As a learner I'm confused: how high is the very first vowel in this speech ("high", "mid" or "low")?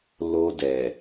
mid